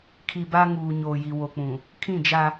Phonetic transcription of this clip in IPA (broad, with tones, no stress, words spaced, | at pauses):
kʰi˨ba˦ ŋuː˨ ɲoː˨ji˨wo˨k͡pũ˨ | kʰĩ˦˨d͡ʒa˦